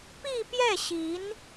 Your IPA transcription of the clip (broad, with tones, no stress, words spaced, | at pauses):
pi˥˧pjɛ˥˩ɕi˧˥n